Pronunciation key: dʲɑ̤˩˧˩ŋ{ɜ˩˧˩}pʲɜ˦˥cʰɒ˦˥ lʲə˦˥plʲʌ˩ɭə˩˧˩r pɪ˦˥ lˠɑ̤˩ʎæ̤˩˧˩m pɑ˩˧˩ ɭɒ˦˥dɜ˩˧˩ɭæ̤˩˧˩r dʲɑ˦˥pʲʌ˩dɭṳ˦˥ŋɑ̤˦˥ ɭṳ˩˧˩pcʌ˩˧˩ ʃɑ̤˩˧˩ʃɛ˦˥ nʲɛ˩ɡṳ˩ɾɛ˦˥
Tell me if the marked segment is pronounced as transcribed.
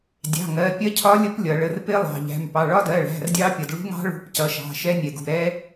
yes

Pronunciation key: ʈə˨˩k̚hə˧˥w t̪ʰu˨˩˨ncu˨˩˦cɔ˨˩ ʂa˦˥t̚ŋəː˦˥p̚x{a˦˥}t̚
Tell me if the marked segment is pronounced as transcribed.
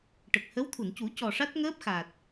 no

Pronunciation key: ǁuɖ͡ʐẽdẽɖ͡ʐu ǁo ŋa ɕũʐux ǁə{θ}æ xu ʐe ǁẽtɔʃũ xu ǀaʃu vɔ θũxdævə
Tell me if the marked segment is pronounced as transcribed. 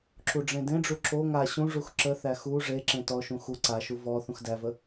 yes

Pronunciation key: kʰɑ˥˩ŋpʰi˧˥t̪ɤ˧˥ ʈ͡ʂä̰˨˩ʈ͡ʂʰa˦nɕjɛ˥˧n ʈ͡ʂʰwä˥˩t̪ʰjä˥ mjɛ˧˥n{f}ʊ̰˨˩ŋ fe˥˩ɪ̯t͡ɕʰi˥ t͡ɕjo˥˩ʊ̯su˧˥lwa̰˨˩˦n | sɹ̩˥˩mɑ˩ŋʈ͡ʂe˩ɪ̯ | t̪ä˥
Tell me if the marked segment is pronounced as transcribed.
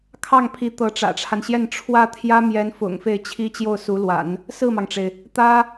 yes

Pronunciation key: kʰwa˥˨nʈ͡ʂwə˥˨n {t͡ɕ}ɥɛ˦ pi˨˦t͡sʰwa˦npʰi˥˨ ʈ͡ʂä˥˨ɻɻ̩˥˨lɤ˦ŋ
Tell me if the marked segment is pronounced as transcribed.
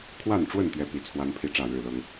no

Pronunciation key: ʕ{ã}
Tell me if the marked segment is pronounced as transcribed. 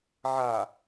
no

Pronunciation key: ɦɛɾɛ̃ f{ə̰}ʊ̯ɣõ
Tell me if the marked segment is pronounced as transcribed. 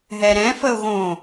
no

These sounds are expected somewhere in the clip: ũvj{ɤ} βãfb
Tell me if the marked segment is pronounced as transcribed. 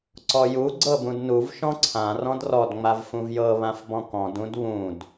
yes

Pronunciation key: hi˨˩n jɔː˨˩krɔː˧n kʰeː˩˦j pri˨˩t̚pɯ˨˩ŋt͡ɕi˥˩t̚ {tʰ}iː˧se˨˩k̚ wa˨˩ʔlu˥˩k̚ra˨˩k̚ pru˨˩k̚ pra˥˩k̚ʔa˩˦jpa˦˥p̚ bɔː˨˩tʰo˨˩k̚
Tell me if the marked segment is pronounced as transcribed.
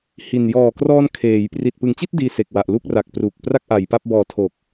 no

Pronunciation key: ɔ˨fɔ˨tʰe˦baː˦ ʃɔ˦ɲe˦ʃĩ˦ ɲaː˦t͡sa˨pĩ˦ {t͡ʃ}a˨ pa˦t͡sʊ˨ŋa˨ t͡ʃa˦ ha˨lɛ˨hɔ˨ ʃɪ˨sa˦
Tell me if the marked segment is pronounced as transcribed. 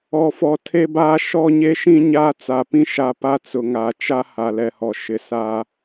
no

